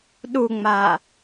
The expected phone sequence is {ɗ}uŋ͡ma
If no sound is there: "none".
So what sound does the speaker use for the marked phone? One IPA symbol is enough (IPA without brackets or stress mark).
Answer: ɗ